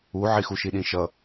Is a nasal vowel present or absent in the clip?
present